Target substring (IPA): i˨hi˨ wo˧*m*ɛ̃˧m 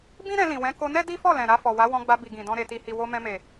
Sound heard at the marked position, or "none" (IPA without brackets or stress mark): m